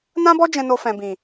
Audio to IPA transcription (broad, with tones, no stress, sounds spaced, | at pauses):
n ã˦ b ɔ˦ d͡ʒ ɛ̃˧ n o˧ f ɛ̃˨ b ĩ˨